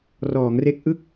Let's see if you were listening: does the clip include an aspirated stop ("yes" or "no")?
no